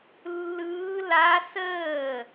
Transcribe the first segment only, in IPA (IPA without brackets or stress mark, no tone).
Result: lː